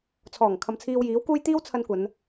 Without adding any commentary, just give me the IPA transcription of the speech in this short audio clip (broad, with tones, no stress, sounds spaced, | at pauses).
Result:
t͡sʰ ɔː˨˩ ŋ kʰ ɐ˨ m t͡sʰ iː˧ w j iː˨˥ w k uː˥ j t̪ iː˥ w t͡sʰ ɐ˧ n kʷ ɐ˨˧ n